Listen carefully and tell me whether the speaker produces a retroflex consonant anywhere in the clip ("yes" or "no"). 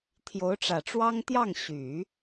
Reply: yes